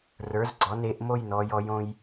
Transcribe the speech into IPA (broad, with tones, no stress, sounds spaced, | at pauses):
r ə˞˩˧ z ɡ͡ǀ ɔ˩˧ n e˩˧ ʔ m o˥˧ j n ɔ˩˧ j ɔ˧ j õ˧ j